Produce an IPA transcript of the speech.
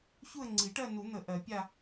çu˥˧ə̯ŋ͡ǀi˨˩˦ʈɜ˥˧ nu˨˩˦n̪ə˨˩˦ ʔɜ˨˩˦pʲa˥˧

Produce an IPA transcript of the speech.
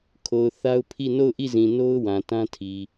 kʰo˨ʊ̯θa˦ʊ̯pʰi˦˨ no˦˨ʊ̯ʔi˦˨zĩ˨no˦ʊ̯ wã˨tã˦tʰi˨

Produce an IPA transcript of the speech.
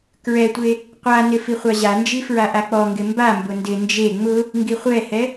kɹɛtʷe | qʷanɪ fiχʷaʑand͡ʒi fɹaʔak͡pɔŋɡɪ mbambʊ ndɪ nd͡ʒe ŋ͡mʊ | ŋɡiχʷɛhɛ

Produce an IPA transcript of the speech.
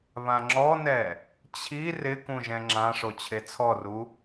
βãŋ͡ǁɔnɛ | t͡ɕʰi rɪkũ ʒɛ̃ŋ͡ǁãʂo t͡ɕʰet͡sʰɔru

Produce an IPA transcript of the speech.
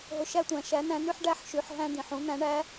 ɦʊ˧ ʃæ˥tʷæ̃˩˧ ʃæ˧˥næ̃˧˥ny˥ħ ɖæ˥ħʃy˩˧ħ ɦæ̃˥ d̪ĩ˩˧ħ ũ˥n̪æ̃˧˥ ɳæ˧˥

